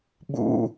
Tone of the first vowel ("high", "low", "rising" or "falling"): high